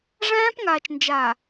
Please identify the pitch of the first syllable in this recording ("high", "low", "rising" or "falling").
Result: high